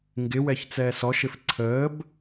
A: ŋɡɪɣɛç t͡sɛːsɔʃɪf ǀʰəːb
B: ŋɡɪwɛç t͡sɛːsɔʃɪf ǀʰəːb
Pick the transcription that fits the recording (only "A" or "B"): B